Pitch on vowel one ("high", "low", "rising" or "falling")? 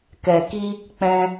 low